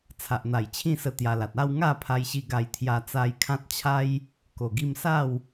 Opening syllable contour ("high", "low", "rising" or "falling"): low